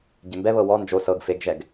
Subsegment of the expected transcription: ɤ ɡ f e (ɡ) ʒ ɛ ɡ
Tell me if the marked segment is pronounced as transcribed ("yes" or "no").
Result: yes